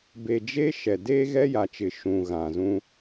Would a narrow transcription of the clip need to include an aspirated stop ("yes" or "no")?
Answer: no